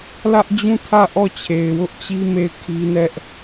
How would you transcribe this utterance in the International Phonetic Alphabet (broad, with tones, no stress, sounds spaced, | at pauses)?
l ä˦ ʔ d͡ʑ ũ˦˨ tʰ ä˦˨ ʔ ɔ˦˨ t͡ɕʰ e˨ ɪ̯ w ʊ˦ ʔ t͡ɕ i˦ m e˦˨ ɪ̯ kʰ i˦ n ɛ˦ ʔ